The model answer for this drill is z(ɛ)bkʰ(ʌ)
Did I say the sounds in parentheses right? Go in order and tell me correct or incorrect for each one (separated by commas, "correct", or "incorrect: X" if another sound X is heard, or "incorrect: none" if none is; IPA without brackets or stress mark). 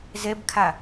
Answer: correct, incorrect: a